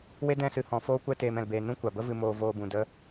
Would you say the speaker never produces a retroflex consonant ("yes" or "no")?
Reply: yes